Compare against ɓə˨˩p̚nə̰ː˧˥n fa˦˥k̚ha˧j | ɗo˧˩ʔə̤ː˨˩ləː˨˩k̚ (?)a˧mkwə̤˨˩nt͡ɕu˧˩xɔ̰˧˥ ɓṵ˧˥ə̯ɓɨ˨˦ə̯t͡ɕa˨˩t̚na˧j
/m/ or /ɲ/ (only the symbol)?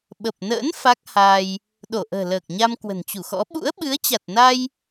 ɲ